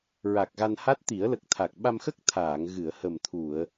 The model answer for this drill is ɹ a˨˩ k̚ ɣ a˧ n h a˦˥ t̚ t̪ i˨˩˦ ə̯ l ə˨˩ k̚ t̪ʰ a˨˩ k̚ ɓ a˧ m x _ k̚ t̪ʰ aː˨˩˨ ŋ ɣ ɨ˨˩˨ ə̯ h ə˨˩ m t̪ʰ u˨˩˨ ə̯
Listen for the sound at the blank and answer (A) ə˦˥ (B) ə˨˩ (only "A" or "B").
A